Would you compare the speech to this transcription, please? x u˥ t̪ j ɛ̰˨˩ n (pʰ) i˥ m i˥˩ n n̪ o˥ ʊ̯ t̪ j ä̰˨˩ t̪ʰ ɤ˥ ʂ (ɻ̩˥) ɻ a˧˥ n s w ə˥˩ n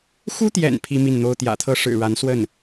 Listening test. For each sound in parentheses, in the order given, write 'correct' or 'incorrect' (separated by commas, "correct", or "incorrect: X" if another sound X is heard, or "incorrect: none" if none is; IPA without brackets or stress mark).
correct, incorrect: ɻ̩˨˩